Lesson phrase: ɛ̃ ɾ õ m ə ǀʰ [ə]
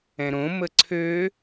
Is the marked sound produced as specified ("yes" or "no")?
no